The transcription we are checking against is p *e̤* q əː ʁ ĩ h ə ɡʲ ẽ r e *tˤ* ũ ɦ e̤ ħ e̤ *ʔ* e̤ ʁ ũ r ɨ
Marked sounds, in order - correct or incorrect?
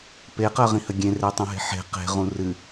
incorrect: e, correct, incorrect: q

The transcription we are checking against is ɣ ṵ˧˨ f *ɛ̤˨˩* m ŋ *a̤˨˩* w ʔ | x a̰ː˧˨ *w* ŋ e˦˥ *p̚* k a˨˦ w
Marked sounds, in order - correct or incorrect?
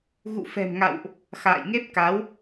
correct, incorrect: a̰˧˨, incorrect: j, correct

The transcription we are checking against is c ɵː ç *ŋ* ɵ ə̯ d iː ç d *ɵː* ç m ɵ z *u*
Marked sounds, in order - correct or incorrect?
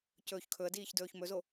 incorrect: kʰ, correct, incorrect: o

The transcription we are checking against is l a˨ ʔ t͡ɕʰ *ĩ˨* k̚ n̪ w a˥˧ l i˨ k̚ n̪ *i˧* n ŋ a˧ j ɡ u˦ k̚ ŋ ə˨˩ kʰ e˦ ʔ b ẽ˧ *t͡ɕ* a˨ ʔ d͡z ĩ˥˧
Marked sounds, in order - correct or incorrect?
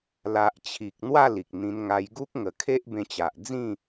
incorrect: i˨, incorrect: ĩ˧, correct

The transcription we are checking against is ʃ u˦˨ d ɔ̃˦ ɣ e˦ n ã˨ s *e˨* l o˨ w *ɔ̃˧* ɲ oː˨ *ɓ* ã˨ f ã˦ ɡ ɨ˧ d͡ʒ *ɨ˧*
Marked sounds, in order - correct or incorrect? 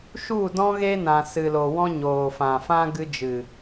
incorrect: ɨ˨, incorrect: ɔ̃˦, incorrect: f, incorrect: ɨ˨

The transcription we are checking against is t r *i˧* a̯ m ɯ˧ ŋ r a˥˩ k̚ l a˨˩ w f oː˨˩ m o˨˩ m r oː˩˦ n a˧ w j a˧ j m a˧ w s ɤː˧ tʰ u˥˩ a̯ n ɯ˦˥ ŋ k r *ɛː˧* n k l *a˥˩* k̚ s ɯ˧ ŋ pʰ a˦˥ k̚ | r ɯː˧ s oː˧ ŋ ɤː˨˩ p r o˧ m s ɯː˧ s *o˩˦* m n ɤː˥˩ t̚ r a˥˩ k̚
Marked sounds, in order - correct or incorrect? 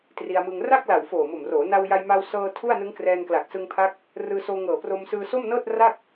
correct, correct, incorrect: a˨˩, incorrect: o˥˩

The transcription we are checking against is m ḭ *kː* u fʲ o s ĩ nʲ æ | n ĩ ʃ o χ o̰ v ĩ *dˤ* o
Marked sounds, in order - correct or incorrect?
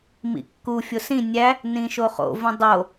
correct, correct

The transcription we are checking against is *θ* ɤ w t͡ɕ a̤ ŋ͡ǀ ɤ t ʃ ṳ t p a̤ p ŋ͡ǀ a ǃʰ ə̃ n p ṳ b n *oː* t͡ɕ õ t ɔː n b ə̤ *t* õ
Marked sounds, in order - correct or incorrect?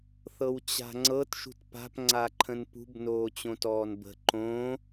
correct, correct, incorrect: ǃ

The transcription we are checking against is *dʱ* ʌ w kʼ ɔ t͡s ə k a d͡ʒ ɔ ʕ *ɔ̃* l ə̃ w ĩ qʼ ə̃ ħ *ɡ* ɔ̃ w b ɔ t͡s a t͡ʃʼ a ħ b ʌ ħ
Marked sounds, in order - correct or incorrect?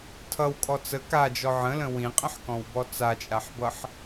incorrect: tʰ, incorrect: ə̃, incorrect: k

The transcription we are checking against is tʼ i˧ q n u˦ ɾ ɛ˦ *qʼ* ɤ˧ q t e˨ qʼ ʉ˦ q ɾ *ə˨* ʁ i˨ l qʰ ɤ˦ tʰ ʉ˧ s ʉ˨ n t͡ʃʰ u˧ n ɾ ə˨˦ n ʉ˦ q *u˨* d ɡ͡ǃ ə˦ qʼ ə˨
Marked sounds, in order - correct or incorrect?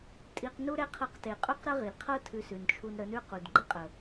incorrect: qʰ, incorrect: ə˦, correct

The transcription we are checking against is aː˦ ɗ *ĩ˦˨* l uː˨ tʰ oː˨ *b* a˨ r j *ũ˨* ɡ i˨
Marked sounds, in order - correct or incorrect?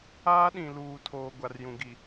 incorrect: ĩ˨, incorrect: ɡʷ, correct

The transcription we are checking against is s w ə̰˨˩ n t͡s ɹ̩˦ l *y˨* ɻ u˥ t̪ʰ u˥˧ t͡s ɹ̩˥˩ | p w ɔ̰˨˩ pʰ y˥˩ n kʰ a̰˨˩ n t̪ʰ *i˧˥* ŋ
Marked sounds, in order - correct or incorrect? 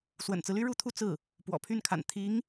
incorrect: y˥, correct

